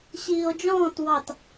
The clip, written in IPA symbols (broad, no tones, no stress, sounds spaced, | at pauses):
ɕ iː o̯ d͡ʒ ɔ̃ː t w ɑ t